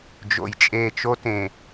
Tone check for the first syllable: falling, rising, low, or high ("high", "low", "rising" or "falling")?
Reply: low